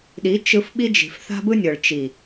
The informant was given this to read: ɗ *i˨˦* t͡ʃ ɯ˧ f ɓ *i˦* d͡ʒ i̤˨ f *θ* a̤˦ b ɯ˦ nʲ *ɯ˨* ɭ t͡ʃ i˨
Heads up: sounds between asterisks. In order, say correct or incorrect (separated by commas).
correct, correct, correct, incorrect